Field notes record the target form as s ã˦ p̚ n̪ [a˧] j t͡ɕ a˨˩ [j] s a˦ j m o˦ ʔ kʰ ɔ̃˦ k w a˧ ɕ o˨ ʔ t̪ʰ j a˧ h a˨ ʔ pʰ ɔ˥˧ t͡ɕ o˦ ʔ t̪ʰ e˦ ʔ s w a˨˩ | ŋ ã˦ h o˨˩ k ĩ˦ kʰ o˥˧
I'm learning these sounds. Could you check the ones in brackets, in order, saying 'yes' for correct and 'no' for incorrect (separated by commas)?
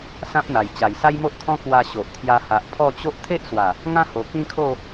no, yes